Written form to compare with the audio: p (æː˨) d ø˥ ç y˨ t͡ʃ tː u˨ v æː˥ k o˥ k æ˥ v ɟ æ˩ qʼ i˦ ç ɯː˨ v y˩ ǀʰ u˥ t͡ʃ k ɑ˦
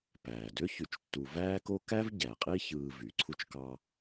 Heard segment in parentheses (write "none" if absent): æː˩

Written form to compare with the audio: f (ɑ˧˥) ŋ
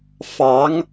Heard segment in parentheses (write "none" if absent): ɑ˧˥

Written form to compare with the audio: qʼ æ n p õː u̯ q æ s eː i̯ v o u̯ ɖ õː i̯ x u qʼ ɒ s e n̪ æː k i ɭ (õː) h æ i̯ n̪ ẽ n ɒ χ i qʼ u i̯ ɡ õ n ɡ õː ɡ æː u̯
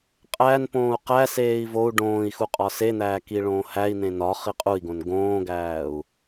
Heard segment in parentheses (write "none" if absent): õː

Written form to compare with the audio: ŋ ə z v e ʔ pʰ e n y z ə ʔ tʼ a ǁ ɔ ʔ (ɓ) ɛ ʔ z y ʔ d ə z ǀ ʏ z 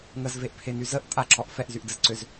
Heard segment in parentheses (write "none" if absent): f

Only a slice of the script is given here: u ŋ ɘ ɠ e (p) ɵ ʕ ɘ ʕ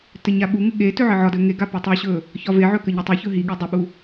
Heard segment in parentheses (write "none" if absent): t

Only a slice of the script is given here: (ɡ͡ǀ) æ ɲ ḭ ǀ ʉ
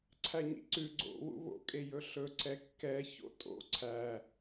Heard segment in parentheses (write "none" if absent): ǀʰ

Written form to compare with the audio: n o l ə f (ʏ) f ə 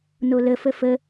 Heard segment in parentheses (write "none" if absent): ə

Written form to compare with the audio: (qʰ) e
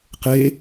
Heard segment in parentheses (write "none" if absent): q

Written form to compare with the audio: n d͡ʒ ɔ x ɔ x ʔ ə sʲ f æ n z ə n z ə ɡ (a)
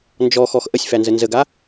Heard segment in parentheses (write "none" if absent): a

